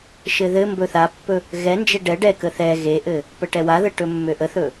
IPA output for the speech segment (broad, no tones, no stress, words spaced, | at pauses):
ʃɘðɘmbɵ θapːɵ | ɣɛnd͡ʒe ɖɛ ɖɛkə θɛ ɣeʔɘ | pəʈɛwaðə ʈɵmːøʔəθɵ